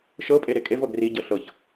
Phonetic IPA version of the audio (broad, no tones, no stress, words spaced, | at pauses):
ʃɤpʼe ɾekʼevɤ ɡriɟɤ ɬɤç